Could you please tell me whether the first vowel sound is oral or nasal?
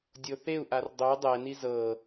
oral